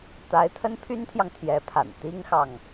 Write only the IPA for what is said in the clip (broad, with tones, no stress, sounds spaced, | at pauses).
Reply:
t̪ a˧˥ ɪ̯ t̪ʰ ə˥ n pʰ y˥ n t̪ʰ j ɑ˨ ŋ t̪ʰ j ɛ˧˥ pʰ a̰˨˩ n t̪ i˥ ŋ x ɑ˨ ŋ